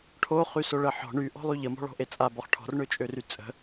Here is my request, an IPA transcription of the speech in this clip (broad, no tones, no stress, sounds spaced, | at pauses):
ʈʰ o χ y s o ɭ ə ħ ɔ̤ ɳ y ʔ ɔ̤ lˠ y ʎ ə m ɔ̤ ɭ ɔ̤ ʔ e t͡sʼ a b ɔ χ ʈʰ ɔ̤ r ɳ ø t͡ʃʼ ø r y t͡sʼ ə̤